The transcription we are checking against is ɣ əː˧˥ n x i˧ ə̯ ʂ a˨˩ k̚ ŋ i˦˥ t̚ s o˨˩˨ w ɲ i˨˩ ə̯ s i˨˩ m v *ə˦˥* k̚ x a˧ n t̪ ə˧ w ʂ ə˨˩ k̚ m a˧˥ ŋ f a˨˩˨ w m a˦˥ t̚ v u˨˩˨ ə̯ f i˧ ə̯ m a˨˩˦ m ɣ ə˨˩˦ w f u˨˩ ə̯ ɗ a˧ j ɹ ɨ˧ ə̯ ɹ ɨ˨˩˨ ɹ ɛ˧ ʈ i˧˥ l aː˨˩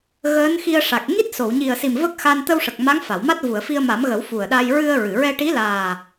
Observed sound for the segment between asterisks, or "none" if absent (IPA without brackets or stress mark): ə˦˥